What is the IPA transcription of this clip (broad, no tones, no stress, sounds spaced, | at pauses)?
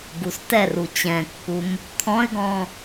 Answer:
ɡ u s t ɛ r u t͡ɕ ɛ̃ kː u m | t̪ʰ ɔ̃ ɪ̯ ɡ ɔ̃